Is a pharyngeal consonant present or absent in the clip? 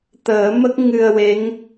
absent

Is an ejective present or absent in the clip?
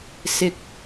absent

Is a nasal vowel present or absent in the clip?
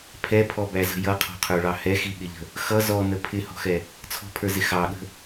absent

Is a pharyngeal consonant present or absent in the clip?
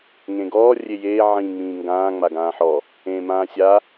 present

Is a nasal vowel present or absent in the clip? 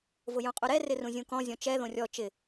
present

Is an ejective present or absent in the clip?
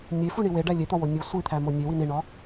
absent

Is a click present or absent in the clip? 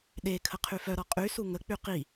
absent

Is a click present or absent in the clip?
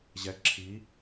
present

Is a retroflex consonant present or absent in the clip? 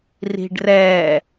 present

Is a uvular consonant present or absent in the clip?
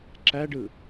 absent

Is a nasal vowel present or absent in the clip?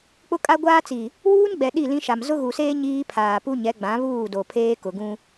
present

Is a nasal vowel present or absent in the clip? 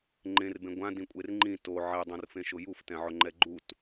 present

